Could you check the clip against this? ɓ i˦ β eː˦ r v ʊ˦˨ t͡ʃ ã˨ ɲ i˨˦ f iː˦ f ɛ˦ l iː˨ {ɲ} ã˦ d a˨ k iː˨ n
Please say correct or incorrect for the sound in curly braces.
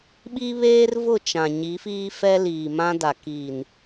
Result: incorrect